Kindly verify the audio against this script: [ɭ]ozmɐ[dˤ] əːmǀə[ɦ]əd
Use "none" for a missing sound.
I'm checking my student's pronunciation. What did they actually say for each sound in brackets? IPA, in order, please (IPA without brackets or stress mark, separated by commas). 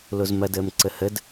l, d, h